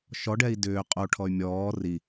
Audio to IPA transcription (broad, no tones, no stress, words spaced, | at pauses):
ʃɔɖɛi̯ dʏː qʼoʈʰɔy̯ mʲɔː ri